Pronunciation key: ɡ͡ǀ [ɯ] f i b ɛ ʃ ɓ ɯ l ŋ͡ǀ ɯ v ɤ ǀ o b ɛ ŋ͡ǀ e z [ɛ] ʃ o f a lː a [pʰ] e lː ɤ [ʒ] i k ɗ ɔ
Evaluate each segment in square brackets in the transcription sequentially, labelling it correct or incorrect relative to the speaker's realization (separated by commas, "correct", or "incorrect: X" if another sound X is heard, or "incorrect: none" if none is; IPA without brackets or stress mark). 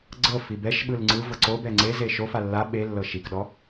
incorrect: ɤ, incorrect: e, incorrect: ɓ, incorrect: ʃ